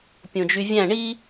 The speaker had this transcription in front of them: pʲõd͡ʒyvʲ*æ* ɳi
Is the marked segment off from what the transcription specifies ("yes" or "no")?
yes